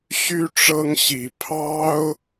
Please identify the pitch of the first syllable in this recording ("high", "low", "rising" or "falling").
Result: high